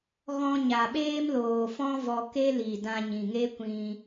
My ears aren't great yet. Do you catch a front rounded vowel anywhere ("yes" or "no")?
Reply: no